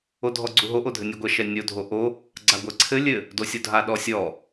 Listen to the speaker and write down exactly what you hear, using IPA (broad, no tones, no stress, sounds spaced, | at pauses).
o dʱ ɔ ɡ͡ǀ u ɦ o ʔ o dʱ ɘ nʲ o ɡʷ ɛ ʃ ɛ nʲ o dʱ o ʔ o | ɡ͡ǀ a ɡʷ ɛ ǀʰ ɘ lʲ ɘ | d o sʲ o dʱ a ɗ ɔ sʲ ɔ